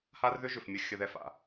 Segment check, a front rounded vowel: present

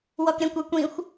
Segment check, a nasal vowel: present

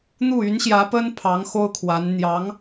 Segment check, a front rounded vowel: present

